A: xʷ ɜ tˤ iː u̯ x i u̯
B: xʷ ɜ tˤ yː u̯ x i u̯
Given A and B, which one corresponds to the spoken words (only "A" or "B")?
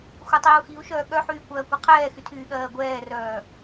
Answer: A